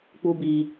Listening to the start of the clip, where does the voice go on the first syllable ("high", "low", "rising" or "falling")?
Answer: high